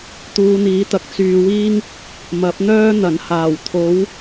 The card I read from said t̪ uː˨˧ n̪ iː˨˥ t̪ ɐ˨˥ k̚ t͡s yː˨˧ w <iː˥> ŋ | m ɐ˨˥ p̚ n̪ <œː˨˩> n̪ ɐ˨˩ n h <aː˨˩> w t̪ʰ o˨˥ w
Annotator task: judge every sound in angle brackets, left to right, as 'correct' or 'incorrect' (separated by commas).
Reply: correct, incorrect, correct